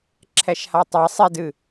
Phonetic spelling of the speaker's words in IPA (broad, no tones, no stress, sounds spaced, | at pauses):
ǁʰ ɛ ʃ h a tˤ ɛ sˤ i d ɨ